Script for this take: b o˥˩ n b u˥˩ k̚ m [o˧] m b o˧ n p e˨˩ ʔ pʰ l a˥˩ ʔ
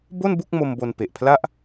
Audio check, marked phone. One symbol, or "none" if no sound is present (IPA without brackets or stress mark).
o˧